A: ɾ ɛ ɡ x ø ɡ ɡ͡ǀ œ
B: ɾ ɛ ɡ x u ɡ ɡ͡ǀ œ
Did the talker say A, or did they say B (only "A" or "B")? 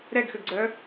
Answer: A